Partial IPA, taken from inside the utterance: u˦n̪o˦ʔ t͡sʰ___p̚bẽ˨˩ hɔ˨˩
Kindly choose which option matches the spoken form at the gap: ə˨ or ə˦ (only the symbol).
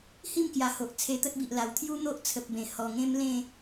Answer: ə˨